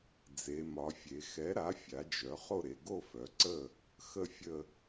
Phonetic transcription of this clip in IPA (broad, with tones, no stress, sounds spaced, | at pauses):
d͡z e˩˧ m ɒ˩˧ fʲ e˩˧ x ɛ˩˥ ɾ a˩˥ fʲ a˩˥ d͡ʒ œ˩˥ χ o˥˨ ɾ e˩˧ ɡ o˥˨ f œ˩˥ ǀ ə˥˨ | x ə˥˨ fʲ ə˥˨